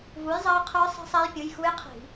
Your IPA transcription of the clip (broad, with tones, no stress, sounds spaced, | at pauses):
v u˨˥ j zˤ ɐː˦˥ qʰ ə˞˦˥ sˤ i̤˦˥ sˤ ɛ˦˥ j pʲ ɯ˩˧˩ j x u˦˥ j qʰ i̤˧˩˧